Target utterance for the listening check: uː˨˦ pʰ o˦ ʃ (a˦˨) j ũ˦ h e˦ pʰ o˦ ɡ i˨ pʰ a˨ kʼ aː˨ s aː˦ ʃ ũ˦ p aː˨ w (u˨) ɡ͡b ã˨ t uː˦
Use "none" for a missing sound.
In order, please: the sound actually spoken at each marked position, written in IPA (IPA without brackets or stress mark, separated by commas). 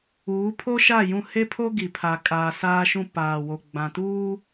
a˦˨, o˨